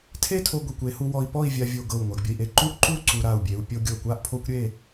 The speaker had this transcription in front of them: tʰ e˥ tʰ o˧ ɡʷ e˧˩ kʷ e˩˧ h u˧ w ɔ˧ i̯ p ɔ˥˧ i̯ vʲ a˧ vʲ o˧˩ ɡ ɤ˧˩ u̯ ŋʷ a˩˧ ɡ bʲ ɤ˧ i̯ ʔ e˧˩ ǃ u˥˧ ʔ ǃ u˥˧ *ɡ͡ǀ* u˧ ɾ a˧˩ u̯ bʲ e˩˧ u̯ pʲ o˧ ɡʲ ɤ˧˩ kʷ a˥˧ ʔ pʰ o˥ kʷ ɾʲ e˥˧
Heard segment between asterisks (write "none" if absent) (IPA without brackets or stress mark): ǀ